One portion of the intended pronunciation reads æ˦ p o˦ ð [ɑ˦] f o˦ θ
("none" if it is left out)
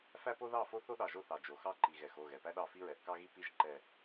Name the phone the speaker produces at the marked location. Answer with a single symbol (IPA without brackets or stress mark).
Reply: ɑ˦˨